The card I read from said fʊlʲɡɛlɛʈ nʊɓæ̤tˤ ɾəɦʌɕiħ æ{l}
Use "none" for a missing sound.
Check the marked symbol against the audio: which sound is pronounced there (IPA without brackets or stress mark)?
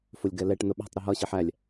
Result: lʲ